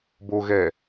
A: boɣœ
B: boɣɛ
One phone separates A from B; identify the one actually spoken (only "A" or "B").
B